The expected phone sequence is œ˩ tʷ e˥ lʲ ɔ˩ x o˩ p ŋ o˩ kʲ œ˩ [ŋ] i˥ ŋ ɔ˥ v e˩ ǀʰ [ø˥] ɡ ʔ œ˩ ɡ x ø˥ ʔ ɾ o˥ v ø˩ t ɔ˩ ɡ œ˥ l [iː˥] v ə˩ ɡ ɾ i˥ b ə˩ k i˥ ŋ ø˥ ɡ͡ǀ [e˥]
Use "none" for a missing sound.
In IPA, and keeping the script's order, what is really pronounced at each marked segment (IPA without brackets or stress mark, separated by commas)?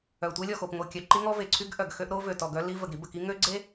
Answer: ǃ, y˥, i˥, e˥